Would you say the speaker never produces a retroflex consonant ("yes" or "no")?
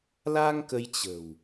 yes